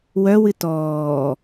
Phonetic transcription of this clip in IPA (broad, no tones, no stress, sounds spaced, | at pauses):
w œ w ɨ t ɔː